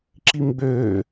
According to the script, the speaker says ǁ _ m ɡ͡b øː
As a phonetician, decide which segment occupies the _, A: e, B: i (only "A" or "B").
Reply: B